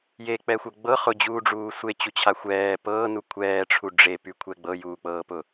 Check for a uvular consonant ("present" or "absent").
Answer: present